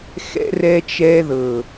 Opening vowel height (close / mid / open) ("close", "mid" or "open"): mid